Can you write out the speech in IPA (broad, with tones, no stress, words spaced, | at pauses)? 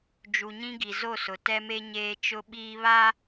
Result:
d͡ʒu˨ɲĩ˦ɡi˨zo˦˨ sʊ˨tɛ˦me˦ɲeː˦ t͡ʃʊ˦ɓiː˦βa˦